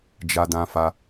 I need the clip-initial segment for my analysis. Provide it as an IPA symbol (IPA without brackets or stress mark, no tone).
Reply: d͡ʒ